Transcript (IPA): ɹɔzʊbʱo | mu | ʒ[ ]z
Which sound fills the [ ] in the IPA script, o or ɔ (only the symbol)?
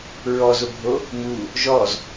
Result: ɔ